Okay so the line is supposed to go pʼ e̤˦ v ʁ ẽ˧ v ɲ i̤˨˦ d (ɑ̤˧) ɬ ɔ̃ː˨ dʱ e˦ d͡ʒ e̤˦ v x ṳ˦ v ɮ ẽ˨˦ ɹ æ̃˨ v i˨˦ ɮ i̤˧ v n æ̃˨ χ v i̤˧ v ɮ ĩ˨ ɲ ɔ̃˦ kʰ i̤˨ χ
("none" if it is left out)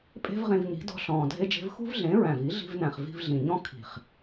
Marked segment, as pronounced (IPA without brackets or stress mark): ɔ̤˧